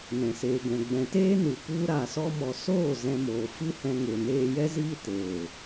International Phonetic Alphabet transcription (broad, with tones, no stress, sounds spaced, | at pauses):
n ɛ̃˨ s eː˨ ɡ ɛ̃˨ ɡ͡b ɛ̃˨ t eː˦ n u˨ p u˦ ɾ a˨ s ɔ˧ m ɔ˨ s oː˦˨ z ɛ̃˧ m oː˨ f ɨ˦ h ɛ̃˧ ŋ e˨ n eː˧ j ɛ˦ z iː˦ t eː˨